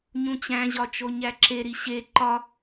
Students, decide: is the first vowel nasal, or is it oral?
nasal